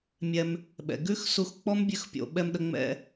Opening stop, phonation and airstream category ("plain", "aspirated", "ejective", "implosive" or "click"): implosive